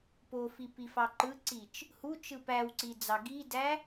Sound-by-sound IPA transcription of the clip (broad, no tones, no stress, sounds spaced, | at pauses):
p o f i p i f ɑ ǃ ɯ ǀ i t͡ʃ | h u t͡ʃ ɯ p æ w ǀ i d͡z ɑ ɡ i d æ